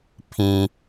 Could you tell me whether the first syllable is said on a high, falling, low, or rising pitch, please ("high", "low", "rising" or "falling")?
low